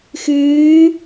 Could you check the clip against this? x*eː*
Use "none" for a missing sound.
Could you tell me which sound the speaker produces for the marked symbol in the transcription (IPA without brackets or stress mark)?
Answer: ɨː